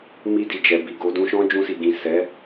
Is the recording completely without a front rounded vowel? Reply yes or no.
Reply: yes